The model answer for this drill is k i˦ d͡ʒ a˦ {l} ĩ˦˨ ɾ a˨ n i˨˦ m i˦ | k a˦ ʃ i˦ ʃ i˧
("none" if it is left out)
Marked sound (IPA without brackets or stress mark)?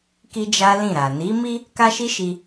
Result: l